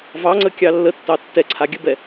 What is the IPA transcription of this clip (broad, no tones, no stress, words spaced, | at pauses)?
vɑŋ͡ǀə kʲɑlːətːɑ tːɛǀʰa ɡʲəbɛ